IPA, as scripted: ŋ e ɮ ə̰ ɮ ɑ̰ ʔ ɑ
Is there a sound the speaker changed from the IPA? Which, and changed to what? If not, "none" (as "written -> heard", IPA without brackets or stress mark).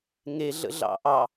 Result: none